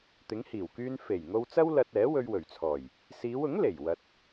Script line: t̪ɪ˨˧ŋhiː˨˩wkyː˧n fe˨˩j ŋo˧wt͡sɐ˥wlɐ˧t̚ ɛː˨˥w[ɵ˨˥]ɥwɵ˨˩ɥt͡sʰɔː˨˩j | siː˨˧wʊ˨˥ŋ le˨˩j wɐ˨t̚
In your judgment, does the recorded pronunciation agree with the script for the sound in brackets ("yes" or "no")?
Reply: no